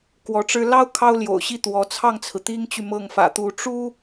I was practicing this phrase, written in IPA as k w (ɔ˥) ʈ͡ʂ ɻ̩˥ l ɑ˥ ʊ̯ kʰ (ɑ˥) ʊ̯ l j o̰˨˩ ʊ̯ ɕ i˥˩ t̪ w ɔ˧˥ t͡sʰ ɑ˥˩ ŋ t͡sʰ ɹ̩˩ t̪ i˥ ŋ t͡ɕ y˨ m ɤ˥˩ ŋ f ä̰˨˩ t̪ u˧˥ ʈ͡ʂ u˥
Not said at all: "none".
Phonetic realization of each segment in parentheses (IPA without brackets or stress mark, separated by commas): ɔ˧˥, ɑ˥